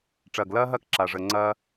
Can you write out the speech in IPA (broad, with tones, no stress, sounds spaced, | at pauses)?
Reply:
ʈ͡ʂ ɐː˨ ɡ l ɐː˦ ɦ ɐː˦ k ǁ a˨ ʐ ə˨ ŋ͡ǀ ɐː˦